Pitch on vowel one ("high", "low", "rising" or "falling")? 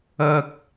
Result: low